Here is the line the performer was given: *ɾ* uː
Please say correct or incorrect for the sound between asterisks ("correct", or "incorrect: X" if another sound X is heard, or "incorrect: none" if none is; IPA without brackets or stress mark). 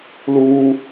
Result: incorrect: l